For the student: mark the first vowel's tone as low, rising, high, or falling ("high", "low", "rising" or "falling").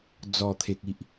low